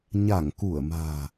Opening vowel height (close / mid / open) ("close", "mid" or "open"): open